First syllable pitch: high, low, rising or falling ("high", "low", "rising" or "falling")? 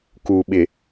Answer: low